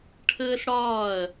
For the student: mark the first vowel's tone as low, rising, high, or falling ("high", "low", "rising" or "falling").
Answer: high